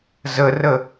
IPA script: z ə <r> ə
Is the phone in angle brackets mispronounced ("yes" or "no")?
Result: no